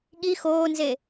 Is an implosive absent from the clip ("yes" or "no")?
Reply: no